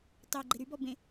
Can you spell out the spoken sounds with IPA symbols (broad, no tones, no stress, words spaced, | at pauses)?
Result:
tɑ ɡ͡ǃeɾyb ɔbẽ